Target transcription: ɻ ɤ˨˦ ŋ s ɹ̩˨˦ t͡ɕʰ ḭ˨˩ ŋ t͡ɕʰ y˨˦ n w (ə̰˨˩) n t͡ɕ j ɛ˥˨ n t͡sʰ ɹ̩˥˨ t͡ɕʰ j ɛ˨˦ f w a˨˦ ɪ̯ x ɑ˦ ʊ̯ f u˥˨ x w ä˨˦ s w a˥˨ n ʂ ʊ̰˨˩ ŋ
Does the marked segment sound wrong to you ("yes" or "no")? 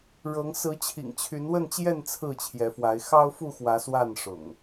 yes